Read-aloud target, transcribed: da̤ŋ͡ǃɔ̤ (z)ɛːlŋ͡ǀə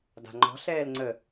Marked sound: incorrect: ɬ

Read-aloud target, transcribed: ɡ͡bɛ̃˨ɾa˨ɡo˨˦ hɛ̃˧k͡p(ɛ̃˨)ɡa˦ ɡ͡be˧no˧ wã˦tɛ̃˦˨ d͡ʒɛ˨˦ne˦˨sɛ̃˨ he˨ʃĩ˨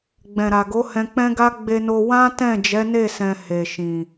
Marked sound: incorrect: ɛ̃˦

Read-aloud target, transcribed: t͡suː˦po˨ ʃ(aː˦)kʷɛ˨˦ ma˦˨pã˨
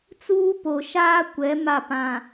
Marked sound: correct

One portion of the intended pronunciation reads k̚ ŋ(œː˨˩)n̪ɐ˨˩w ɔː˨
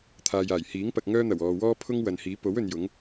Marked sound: incorrect: œː˥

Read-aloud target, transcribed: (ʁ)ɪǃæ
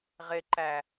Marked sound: correct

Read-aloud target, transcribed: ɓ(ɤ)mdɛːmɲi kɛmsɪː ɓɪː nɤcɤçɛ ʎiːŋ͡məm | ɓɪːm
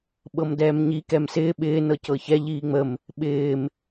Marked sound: correct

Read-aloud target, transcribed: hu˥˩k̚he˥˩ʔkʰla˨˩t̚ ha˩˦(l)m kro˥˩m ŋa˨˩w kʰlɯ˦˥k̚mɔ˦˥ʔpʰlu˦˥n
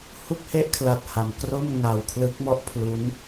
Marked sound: incorrect: none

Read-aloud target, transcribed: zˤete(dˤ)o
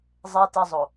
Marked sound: incorrect: zˤ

